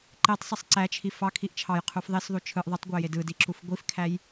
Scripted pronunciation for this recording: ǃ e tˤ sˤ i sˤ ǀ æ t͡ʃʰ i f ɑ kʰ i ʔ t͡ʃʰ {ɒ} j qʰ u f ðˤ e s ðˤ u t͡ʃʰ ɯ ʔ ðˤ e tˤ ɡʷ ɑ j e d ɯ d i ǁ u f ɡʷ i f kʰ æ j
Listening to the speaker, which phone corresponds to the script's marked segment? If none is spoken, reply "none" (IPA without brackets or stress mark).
ɑ